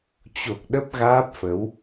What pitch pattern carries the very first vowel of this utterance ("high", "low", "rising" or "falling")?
low